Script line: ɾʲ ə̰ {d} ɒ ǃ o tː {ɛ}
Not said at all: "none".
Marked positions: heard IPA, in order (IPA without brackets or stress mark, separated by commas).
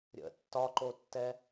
tː, ɛ